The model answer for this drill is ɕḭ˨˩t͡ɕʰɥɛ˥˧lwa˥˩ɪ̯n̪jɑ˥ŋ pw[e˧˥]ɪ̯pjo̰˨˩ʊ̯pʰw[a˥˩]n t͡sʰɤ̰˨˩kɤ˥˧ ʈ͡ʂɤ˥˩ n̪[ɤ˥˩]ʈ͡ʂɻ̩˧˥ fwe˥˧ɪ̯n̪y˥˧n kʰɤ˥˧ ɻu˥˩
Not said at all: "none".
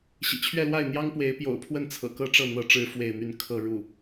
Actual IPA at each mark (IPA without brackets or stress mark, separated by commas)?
e˧˥, ə˥˩, ɤ˧˥